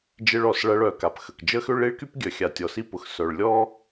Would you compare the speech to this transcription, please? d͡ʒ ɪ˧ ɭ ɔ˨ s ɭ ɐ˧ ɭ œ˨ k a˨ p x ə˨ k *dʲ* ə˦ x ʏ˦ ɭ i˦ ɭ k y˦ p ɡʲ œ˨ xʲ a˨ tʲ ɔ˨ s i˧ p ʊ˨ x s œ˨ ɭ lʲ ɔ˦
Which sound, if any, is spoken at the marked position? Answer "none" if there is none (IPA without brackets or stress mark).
d͡ʒ